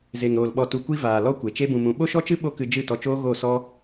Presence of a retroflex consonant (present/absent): absent